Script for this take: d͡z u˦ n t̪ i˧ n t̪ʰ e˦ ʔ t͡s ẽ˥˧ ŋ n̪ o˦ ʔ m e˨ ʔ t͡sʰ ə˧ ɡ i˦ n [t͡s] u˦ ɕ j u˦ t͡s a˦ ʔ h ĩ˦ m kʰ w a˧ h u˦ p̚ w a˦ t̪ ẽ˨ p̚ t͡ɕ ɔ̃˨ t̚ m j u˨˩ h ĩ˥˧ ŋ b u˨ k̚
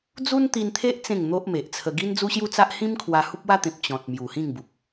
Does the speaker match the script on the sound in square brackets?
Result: no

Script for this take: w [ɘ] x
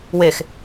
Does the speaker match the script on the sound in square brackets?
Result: no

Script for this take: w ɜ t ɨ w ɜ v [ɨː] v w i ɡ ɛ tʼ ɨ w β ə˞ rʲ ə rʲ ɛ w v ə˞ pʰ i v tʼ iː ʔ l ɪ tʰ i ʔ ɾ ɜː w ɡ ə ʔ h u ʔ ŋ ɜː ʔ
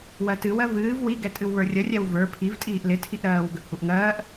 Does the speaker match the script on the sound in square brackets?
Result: yes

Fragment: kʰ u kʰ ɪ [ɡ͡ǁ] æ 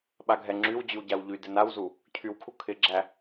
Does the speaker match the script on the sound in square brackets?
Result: yes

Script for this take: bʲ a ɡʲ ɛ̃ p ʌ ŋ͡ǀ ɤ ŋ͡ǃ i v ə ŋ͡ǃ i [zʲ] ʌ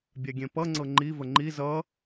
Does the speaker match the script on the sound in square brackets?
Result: no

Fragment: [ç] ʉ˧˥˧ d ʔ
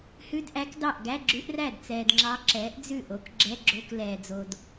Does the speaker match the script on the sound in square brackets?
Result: no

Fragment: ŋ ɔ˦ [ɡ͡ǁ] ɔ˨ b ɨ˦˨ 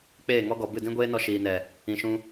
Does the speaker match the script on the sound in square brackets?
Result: no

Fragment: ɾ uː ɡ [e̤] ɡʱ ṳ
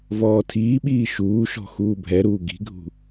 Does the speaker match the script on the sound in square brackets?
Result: no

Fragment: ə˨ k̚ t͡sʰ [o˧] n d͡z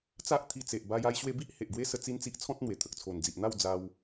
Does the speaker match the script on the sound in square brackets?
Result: no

